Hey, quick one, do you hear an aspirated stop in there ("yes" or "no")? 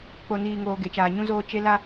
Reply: no